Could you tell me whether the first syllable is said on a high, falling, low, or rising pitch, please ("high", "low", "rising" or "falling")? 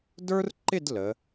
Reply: high